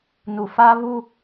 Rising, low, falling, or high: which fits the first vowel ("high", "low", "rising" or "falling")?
low